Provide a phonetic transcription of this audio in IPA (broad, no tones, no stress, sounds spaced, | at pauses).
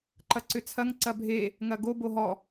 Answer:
ǃ ɐ ǀ ʏ t͡sʰ ɐ ŋ ǀ ɐ bʱ e | ŋ ɐ ɡ o b o ɦ ɔ